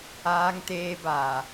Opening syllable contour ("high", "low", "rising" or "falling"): low